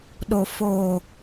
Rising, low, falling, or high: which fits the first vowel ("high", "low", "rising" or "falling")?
low